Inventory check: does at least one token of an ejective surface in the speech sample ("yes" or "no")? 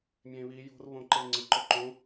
no